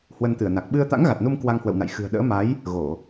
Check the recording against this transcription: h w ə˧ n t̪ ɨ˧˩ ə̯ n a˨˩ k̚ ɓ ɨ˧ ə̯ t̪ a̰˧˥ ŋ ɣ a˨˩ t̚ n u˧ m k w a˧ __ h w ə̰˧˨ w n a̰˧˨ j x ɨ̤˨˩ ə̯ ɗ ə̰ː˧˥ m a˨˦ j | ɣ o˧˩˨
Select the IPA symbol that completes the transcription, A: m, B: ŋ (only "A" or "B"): B